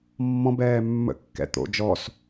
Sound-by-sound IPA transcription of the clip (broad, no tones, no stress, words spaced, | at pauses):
mːɔ̃ bɛːmːə̰kːɛ̰ t̪o̰ d͡ʒɔs